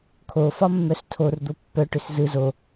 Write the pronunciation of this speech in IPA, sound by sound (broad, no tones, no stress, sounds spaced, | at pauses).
kʰ o f ɒ mː œ s tʰ o r d̪ o pː œ ʈ ʏ s z ɯ z o